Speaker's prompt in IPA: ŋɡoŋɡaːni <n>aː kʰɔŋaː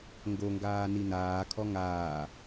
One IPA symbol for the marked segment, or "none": n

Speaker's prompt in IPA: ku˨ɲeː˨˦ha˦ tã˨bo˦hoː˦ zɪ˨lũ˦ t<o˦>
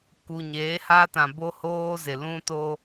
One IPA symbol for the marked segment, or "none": o˦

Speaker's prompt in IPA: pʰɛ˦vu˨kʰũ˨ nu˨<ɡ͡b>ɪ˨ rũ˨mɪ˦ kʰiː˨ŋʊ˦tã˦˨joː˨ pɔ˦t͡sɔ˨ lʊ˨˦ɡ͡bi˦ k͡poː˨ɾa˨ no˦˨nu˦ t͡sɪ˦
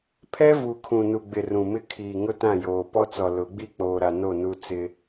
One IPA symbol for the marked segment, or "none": ɡ͡b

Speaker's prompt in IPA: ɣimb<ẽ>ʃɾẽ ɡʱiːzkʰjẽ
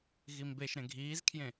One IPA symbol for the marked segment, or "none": e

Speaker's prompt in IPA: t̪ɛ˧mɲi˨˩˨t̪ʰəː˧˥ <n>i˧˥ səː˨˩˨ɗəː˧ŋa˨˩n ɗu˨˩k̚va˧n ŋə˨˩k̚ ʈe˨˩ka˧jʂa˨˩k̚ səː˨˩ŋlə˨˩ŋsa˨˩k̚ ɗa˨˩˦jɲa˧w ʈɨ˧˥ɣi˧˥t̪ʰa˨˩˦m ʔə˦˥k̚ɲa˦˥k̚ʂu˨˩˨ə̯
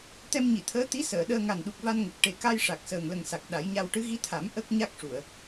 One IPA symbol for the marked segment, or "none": t̪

